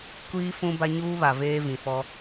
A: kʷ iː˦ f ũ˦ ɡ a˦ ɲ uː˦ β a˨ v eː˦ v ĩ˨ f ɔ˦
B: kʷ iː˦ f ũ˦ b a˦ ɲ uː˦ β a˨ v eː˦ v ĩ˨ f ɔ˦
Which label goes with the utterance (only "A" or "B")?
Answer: B